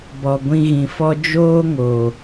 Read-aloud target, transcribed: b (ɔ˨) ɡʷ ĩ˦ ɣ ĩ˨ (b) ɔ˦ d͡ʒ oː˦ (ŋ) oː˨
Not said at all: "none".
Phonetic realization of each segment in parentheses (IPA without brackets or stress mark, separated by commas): ɔ˨, f, ŋ